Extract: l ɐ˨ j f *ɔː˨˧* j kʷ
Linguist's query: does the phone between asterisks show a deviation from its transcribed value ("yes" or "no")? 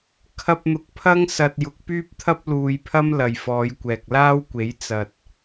no